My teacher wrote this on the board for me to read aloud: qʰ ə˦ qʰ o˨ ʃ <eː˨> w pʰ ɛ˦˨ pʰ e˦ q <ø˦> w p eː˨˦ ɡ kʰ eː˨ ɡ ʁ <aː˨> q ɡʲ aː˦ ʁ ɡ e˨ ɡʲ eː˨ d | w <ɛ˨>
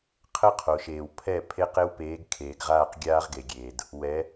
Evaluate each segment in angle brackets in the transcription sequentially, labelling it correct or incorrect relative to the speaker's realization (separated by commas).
correct, incorrect, incorrect, incorrect